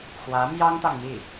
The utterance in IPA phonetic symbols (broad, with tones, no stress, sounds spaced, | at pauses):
x w ä˧˥ m j ɑ˥ ŋ t̪ ɑ˨ ŋ m i˥˩